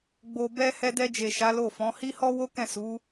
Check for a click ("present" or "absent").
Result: absent